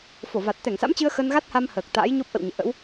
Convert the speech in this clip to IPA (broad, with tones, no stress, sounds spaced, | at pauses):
f o˧˩ v a˨˩ t̚ t̪ ɛ˧˩ ŋ s a̰˧˥ m t͡ɕ ɨ˧ ə̯ x ə˧ n ɣ a˦˥ t̚ h a˧ m h əː˨˩ k̚ t̪ a̰ː˧˥ j ɲ o˦˥ p̚ ʔ ə̰˧˨ w ɲ ḛ˧˨ ʔ ə̰˧˥ w